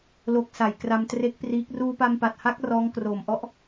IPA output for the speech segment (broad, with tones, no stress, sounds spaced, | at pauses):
l o˦˥ k̚ s a˨˩ j k r a˧ m t r e˦˥ k̚ p r iː˦˥ k̚ r uː˧ p a˧ m p a˨˩ t̚ h a˦˥ k̚ r ɔː˦˥ ŋ k r oː˨˩ m ʔ ɔ˥˩ ʔ